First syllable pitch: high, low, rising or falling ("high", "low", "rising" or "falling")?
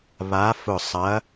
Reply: rising